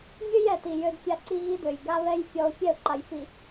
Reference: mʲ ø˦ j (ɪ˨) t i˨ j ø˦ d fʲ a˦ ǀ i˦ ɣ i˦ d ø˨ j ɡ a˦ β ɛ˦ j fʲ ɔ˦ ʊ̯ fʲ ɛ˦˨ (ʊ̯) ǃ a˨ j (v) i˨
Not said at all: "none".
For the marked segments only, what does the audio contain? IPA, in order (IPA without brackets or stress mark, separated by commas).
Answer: ɛ˨, ʊ̯, f